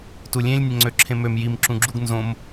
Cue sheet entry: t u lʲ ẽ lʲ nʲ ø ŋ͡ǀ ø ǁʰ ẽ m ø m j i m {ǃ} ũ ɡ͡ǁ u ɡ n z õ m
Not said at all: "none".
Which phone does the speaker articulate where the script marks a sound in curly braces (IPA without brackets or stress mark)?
ǁ